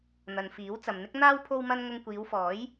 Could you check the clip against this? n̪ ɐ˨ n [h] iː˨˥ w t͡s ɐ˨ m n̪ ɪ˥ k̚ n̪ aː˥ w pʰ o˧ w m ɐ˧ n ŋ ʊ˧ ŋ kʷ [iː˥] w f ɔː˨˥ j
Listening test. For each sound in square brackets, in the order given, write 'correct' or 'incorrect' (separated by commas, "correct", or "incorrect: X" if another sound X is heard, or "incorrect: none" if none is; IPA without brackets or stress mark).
incorrect: f, incorrect: iː˨˧